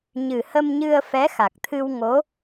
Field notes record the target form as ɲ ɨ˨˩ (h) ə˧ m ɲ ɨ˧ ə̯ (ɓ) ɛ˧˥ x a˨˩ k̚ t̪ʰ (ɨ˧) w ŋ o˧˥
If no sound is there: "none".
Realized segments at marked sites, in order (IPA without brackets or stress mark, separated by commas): h, f, ɨ˧